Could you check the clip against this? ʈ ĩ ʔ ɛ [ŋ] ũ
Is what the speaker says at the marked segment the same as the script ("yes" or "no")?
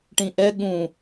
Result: no